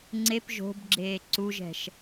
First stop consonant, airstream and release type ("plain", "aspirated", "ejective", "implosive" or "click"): click